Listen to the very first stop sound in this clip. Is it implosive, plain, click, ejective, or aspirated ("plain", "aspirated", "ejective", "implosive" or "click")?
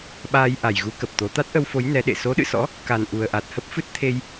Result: implosive